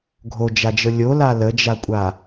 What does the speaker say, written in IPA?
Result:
ɡʱ o d͡ʒ a d͡ʒ ɤ lʲ o l a l ə d͡ʒ a kʷʼ a

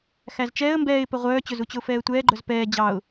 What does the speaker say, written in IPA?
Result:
x æ z t͡ʃ ɛː ə̯ m b ɛː ɪ̯ p ɛ ʁʷ œː t͡ɕ ɵ z u t͡ɕ ɵ ʊ̯ f ɛː ə̯ tʷ ɛː ɡ͡ǃ œ z p ɛː d͡ʑ ɑ ʊ̯

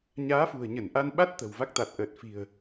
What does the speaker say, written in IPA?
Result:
ɲ aː˨˦ f ṳ˨˩ ə̯ ɲ ə˧˩ n ʔ a˧ n ɓ a˦˥ t̚ t̪ ə̤˨˩ w v a˦˥ k̚ t̪ a˨˩ t̚ ʔ əː˨˩ t̚ f i̤˨˩ ə̯

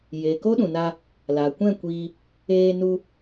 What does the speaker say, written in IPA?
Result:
j eː˨ k o˦ ɗ ũ˨ n a˧ | l aː˨ kʷ ɛ̃˦˨ kʷ iː˧ | eː˧ n u˧

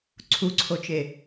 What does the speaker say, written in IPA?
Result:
ǀʰ u ǀʰ o t͡ʃ e

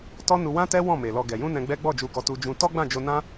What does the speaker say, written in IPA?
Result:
t ɔ˦ n u˧ w ã˦ t ɛ˦ w ɔ̃˦˨ m e˨ l ɔ˨ ɡ ɛ˨ j ũ˧ n ɛ̃˧ ɡ͡b ɛ˦ ɡ͡b ɔ˦˨ d͡ʒ u˧ ɡ ɔ˧ t u˧ d͡ʒ ũ˧ t ɔ˦ ɡ͡b ã˦˨ d͡ʒ o˧ n ã˦

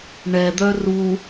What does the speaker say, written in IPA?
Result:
ɳ ɛ d̪ œ r u

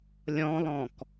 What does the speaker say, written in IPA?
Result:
lʲ ɔ̃ lˠ ɔ̃ k

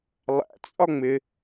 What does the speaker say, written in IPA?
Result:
lˠ æ̰ t͡sʼ ɒ ŋ͡m ɪ

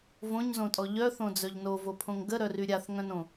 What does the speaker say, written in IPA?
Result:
v õ ɲ z õ tʼ ɔ ʎ œ θ õ d͡z œ ʎ n o v o pʰ õ ŋ ɡ ə ɾ œ r y ɾʲ a θ ŋ œ̃ n õ

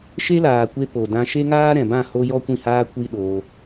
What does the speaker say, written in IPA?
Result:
ʃ e˦ l aː˨ kʷ e˧ p o˨ d ã˧ ʃ e˦ ŋ aː˦ ɾ ɛ̃˨ b ã˦˨ h o˦ j ɔ˦ kʷ ĩ˦˨ h aː˦ kʷ i˦ ɗ oː˧

